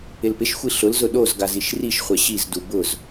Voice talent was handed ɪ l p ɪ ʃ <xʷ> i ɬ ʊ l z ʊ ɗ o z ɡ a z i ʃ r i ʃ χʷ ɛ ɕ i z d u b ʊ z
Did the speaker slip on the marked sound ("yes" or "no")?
no